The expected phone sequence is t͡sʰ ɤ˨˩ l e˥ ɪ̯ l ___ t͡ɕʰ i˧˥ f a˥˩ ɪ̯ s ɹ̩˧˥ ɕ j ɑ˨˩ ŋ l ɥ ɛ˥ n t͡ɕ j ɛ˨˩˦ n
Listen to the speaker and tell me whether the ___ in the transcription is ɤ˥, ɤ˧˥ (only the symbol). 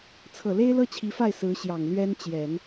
ɤ˥